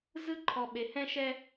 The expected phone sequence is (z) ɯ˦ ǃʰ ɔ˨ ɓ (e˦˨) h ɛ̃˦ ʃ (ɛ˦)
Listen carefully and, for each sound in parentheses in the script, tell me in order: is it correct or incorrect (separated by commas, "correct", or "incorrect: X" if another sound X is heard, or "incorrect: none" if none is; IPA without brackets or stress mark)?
correct, incorrect: e˨, correct